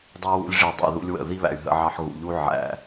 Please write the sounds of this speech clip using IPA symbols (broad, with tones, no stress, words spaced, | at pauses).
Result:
dˤu˧wṵ˧lʲ ʐi˨ dˤæ̰˨ ðṵ˦lʲwə̰˦˨ ði˦βæ̰˨y̯ ɦə̰˧ʕɑ˧ħ ɣṵ˨ʎu˦ ʕæ̰˧